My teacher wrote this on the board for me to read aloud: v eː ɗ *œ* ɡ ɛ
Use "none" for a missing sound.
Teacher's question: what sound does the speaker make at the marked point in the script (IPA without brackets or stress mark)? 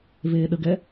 ə